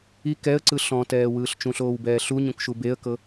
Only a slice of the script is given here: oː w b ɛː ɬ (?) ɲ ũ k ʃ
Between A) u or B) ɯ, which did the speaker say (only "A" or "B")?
A